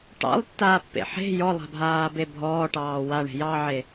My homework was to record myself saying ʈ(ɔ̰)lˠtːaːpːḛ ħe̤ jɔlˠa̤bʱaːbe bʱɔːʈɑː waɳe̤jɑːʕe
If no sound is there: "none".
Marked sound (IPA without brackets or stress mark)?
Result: ɑ̰